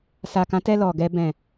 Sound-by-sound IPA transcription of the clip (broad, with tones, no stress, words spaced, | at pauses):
sa˨kã˨˦tɛ˧ lɔ˨ɡɛ˧ bɛ̃˨